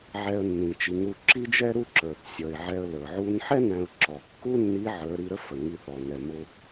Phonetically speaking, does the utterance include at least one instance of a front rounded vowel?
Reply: no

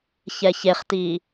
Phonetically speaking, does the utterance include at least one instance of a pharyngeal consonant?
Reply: no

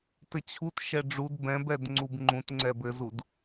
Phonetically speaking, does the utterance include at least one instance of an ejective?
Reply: no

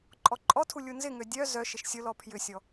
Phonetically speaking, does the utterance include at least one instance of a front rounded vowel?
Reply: yes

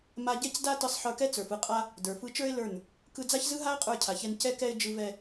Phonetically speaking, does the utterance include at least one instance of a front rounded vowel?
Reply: no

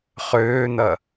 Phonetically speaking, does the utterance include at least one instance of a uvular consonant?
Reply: yes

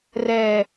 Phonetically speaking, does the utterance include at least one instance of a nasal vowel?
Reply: no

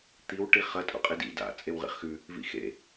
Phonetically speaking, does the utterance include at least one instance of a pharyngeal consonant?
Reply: no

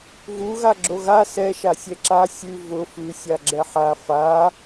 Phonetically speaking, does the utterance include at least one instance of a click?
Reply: yes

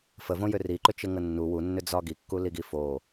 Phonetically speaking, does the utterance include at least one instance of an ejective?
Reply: no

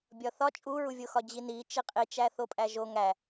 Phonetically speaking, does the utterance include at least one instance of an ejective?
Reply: yes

